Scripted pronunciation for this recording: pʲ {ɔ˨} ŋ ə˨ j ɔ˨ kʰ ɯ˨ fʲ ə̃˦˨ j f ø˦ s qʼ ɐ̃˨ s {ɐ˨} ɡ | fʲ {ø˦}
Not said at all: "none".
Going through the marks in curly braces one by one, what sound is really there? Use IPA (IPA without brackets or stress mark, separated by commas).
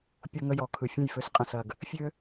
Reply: o˨, ɐ˨, ø˦